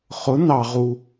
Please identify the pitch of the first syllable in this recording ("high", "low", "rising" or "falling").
rising